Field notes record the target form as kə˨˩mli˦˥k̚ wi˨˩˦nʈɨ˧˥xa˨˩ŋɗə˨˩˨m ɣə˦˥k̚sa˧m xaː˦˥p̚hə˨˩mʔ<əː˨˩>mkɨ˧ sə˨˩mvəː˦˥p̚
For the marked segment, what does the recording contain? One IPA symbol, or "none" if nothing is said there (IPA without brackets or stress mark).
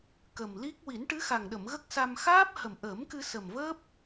əː˨˩˦